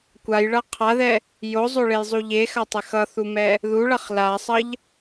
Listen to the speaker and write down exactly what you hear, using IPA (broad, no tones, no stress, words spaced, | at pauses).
kʷajɭʌ qʰaðɛ | jozˤoɭejzˤu ʎexatˤɛx ʌθumɛ | ðuɭʌχ lasˤʌʎ